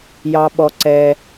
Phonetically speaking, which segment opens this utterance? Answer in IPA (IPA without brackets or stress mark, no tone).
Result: j